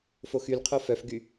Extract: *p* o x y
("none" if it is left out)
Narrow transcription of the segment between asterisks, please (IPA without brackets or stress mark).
f